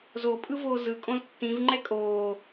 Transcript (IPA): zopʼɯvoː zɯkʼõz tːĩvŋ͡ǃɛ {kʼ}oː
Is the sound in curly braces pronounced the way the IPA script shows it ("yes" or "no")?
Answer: yes